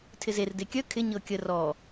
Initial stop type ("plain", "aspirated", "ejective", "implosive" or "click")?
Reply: aspirated